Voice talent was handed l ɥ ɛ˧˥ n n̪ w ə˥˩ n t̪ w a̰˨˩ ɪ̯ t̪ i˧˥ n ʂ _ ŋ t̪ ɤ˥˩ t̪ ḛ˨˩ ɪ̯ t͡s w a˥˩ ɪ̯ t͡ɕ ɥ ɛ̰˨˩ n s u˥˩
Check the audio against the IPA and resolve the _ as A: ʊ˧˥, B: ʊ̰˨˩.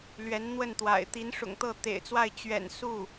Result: B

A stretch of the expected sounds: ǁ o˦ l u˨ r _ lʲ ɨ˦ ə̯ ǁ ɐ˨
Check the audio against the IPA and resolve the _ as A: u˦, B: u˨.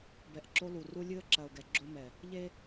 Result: A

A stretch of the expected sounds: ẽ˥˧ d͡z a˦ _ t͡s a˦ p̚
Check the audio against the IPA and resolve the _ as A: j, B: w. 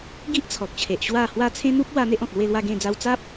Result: B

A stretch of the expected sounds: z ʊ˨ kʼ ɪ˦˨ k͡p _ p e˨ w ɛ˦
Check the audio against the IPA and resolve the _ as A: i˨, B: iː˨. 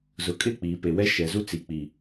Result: B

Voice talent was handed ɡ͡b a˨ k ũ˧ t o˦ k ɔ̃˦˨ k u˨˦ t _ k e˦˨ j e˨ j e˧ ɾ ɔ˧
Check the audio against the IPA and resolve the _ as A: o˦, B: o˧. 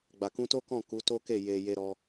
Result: A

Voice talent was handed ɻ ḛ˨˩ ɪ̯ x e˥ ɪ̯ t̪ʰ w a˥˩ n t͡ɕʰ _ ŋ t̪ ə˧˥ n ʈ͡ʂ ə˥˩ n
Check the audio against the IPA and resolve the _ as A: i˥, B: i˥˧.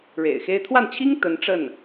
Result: A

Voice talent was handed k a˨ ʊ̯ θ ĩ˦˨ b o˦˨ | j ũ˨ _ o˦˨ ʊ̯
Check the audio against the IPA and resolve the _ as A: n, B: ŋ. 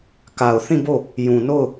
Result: A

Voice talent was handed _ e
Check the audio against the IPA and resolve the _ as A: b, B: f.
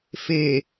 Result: B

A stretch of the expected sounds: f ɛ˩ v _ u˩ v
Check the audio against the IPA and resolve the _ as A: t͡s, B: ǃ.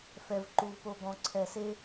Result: B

